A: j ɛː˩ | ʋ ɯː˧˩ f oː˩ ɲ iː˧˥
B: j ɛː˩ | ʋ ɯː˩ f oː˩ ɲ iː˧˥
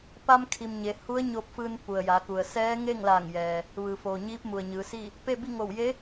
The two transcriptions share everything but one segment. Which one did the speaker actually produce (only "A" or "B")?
B